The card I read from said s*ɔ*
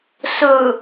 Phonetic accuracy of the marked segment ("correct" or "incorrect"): incorrect